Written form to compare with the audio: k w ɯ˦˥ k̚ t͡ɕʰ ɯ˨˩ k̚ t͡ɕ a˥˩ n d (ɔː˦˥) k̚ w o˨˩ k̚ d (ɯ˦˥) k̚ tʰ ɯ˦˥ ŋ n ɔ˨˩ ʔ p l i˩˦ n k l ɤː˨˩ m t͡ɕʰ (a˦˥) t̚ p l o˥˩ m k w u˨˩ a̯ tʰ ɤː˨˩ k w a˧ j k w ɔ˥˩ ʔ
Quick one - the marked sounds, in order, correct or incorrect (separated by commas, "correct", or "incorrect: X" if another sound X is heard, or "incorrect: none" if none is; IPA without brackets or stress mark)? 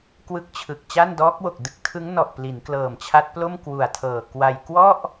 correct, correct, correct